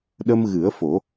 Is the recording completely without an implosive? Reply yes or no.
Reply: no